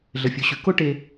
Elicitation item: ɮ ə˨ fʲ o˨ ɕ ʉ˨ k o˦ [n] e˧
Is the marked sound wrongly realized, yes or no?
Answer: yes